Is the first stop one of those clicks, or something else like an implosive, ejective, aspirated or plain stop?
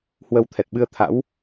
aspirated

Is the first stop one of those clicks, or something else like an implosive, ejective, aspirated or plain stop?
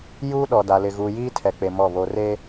implosive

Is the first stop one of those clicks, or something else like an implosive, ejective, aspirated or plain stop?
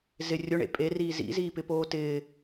ejective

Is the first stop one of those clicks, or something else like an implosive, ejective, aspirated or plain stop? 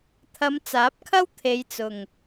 aspirated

